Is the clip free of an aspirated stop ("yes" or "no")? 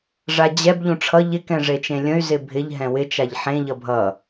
no